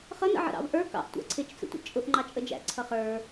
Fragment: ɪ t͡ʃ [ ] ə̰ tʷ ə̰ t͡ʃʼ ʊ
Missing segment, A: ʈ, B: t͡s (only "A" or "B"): B